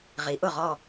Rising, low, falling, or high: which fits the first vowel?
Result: rising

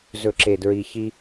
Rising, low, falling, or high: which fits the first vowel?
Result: low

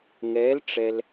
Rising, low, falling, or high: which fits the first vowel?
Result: rising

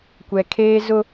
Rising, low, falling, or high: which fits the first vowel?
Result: high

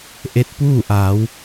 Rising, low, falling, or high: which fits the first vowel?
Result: rising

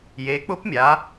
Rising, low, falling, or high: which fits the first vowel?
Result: rising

